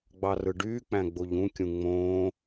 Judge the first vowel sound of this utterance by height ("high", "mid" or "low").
low